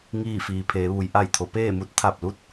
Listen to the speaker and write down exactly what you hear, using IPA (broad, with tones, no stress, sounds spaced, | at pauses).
ŋ iː˥˨ f iː˩ pʰ eː˩˧ ʋ u˩˧ j ʔ a˧˩ j t̪ʰ o˩˧ p eː˥˨ m u˧˥ t̚ t̪ʰ a˧˩ p̚ l u˥˨ t̚